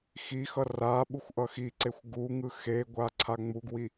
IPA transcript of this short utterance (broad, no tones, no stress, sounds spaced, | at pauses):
x i x ʌ r a ɓ u xʷ ʔ ʌ x i ǀ e xʷ ɡ u ŋ ɯ x e ɡʷ a ǀʰ a ŋ͡m u ɡ w i